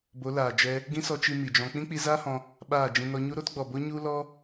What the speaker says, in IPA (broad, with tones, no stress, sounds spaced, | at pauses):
b o˨˦ l aː˨ d͡ʒ ɛ˧ | ɡ ĩ˦ s ɔ˧ t͡ʃ i˧ m i˨ d͡ʒ ɔ̃˧ k͡p ĩ˦ k͡p i˧ z aː˦ h ɔ̃˧ | ɓ aː˦˨ d͡ʒ ĩ˧ n ɔ˧ ɲ u˦ ɾ o˦ t ɡ͡b ɔ˨ b o˦ ɲ u˦ l ɔ˦